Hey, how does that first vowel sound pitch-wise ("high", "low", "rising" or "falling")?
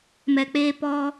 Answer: low